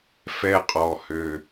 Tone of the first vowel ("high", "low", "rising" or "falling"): falling